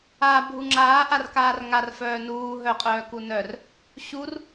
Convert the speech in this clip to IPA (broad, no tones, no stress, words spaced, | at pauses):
a bʱuŋ͡ǁaː ʔarkaːrŋar fœːnuː ɦœ qʼœːkunœr | ɕur